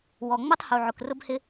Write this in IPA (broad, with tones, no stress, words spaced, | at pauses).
wɔ˨ŋ͡mʊ˦tˤ hu˨ʕʊ˨k rʊ˦bhɪ˦